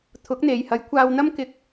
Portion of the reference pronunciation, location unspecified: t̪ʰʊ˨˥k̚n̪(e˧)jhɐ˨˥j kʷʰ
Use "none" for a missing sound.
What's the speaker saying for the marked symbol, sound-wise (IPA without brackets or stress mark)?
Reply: e˨